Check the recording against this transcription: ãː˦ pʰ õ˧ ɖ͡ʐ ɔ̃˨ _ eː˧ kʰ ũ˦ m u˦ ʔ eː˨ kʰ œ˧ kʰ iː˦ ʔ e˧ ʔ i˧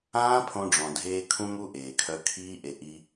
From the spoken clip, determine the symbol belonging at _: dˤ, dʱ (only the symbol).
dʱ